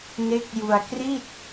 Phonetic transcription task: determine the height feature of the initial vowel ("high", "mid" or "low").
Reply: mid